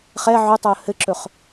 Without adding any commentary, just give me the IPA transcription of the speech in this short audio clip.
χɛ ʕɵtˤɵə̯ hɘǁɵχ

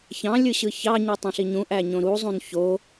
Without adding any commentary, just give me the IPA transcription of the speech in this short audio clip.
çɑ̃lʲɯɕɯ çɑɲutˤũɬi ɲũʔæɲõ ɾuzˤũn ço

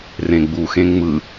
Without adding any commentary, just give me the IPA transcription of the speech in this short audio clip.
rẽɡ͡buxẽ ŋ͡mɯ

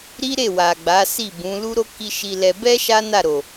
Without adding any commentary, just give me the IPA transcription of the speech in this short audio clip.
ɾi˦ɾe˦˨wa˨ ɡ͡ba˨˦si˦˨bũ˨˦ lu˦ɾo˦ ki˦ʃi˧lɛ˧ bɛ˦ ʃa˦na˦˨ɾo˨

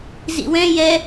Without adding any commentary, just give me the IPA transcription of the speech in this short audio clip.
zḭwɛ̃ jɛ

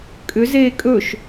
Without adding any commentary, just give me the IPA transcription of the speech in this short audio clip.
kʼʏzeː kʼɵʃ

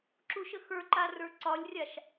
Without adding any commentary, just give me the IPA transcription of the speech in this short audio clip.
ǁuʃəxə˞ǃa rə˞ǀɒlʲrʲaʃ

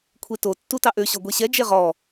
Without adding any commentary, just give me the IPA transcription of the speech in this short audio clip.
kʷʰeto tːutɑʔø ɕɔɡʷeɕɛ d͡ʒeʁɔ

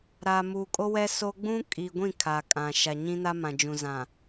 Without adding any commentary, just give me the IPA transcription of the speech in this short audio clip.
ɾaː˨muː˨kʼo˦wɛ˦ so˦ ɡ͡bũ˦kʼi˨ɡʷĩ˦˨ kʰa˨kʼã˨ ʃa˨ɲĩ˦na˦mã˨ d͡ʒũ˨zã˨

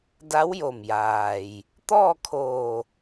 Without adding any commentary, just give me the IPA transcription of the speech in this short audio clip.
da˧˥wjo˧˩mjaː˩j | t̪ɔː˥˨kʰoː˧˩

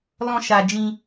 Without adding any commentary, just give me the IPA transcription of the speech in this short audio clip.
lɔ̃˧ʃa˨d͡ʒĩ˧

